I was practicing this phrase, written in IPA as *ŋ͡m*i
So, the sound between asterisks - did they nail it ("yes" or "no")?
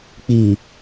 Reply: no